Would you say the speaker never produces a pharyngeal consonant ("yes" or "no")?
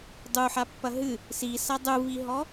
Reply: no